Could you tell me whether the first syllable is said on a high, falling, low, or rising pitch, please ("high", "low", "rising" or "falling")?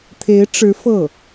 rising